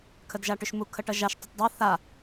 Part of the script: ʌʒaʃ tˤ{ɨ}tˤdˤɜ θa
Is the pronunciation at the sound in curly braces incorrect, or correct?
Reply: incorrect